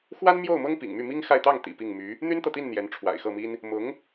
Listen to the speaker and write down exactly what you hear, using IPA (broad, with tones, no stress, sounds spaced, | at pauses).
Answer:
x w a˥ n m j o˥˩ ʊ̯ m ɤ˥ ŋ p ḭ˨˩ ŋ m y˥˩ m i˥ ŋ x a˥˧ ɪ̯ t̪ ɑ˥˩ ŋ t̪ ḭ˨˩ p i˥˩ ŋ m y˧˥ | n̪ y˥ n t̪ ɤ˨ t̪ i˥˩ n n̪ j ɛ˧˥ n ʈ͡ʂʰ w a̰˨˩ ɪ̯ x ɤ˥˩ m i˥ n | m ʊ˧˥ ŋ